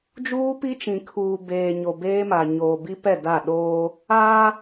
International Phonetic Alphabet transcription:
d͡ʒ uː˦ p i˦ t͡ʃ ĩ˨ kʰ uː˨ b eː˨ ɲ o˨ b eː˦ m a˨ ɲ oː˨ b i˦ p ɛ˦˨ d a˦˨ ɗ oː˦ | aː˦

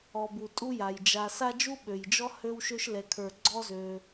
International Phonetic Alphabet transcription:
ɔ˨ b u˩ tʼ u˦ j a˩ j d͡ʒ a˨ s a˦ d͡ʒ u˥ ɓ ø˩ j d͡ʒ ɔ˥ h ø˥ w ʃ ø˥ ʃ l ɛ˨ kʰ ə˞˨ ɡ͡ǀ ɔ˦ z ø˩

